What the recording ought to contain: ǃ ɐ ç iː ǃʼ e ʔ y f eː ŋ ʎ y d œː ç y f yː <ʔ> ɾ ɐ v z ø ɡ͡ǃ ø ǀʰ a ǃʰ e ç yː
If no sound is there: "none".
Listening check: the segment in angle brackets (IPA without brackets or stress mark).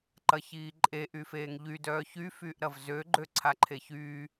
ʔ